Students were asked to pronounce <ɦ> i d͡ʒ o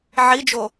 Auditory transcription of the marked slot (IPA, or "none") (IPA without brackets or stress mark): ʕ